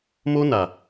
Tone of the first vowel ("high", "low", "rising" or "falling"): high